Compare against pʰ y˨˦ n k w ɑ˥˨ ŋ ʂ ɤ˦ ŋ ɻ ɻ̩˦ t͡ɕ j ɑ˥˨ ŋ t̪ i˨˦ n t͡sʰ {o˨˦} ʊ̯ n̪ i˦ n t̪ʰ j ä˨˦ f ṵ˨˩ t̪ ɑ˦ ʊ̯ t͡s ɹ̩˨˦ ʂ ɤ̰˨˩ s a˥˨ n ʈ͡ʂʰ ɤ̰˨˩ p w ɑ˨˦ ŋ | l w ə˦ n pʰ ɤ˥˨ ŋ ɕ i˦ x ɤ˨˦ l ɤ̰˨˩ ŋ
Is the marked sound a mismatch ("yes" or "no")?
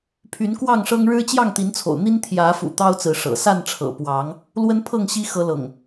yes